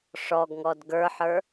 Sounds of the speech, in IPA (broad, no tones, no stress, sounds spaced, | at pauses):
ʂ ɔ ɡ ŋ ɔ d ɡ ə˞ ħ ə˞